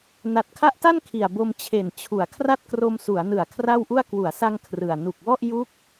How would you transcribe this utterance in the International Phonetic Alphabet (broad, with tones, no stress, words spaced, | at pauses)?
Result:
na˨˩t̚kʰa˦˥ʔta˥˩n kʰi˨˩a̯bo˧m t͡ɕʰe˨˩nt͡ɕʰu˩˦a̯kʰra˥˩t̚kro˧m su˩˦a̯nɯ˨˩a̯ kʰra˥˩wʔu˥˩a̯ kwu˩˦a̯sa˧ŋ kʰrɯ˨˩a̯ nu˨˩k̚wɔ˥˩ʔ ju˦˥k̚